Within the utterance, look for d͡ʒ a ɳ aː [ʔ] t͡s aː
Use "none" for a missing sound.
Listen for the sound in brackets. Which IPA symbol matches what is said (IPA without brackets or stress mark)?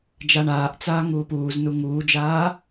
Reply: ʔ